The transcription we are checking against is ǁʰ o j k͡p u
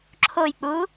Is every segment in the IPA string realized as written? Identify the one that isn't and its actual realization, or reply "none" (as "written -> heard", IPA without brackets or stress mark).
none